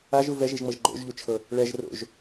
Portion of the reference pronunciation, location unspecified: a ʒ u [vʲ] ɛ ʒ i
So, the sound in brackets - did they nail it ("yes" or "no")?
no